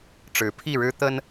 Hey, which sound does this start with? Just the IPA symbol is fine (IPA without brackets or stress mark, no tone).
ʈ͡ʂ